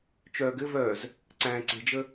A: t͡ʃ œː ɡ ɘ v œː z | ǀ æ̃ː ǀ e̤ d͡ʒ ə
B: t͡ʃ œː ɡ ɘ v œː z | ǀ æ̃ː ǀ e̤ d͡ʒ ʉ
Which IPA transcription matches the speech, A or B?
A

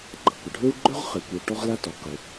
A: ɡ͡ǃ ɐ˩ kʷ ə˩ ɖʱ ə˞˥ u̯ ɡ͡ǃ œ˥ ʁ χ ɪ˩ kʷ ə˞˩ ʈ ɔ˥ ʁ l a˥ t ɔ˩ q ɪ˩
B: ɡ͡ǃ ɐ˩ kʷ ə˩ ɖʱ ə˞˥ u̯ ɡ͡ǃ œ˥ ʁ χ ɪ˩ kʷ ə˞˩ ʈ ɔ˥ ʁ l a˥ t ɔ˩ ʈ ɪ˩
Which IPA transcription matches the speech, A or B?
A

